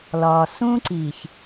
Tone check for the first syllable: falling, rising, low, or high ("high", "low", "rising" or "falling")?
low